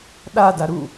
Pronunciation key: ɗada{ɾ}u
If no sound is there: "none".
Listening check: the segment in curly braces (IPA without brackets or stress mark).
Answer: ɾ